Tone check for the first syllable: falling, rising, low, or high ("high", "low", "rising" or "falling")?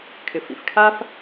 low